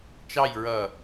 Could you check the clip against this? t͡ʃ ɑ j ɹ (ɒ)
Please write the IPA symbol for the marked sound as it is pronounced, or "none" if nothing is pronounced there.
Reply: ʌ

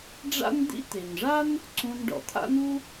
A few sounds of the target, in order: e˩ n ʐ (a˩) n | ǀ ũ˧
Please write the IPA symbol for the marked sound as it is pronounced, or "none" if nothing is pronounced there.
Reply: a˥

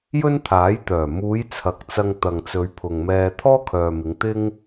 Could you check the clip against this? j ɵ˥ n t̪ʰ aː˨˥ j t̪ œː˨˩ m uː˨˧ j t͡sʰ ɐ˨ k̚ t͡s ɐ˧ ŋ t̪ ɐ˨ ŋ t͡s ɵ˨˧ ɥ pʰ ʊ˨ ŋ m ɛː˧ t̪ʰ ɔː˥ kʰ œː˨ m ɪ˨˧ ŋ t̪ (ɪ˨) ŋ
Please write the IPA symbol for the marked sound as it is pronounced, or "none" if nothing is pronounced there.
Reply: ɪ˥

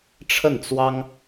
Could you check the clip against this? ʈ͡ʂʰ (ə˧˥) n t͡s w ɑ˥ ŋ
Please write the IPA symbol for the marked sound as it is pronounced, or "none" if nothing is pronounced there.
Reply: ə˥˩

